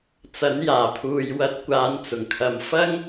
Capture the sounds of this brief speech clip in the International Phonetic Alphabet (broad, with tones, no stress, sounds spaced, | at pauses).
t͡s ɐ˨˥ n j aː˨˩ pʰ uː˨ j w ɐ˧ t̚ kʷ aː˨˧ n t͡s ʊ˨˩ ŋ kʰ ɐ˨ m f ɐ˥ ŋ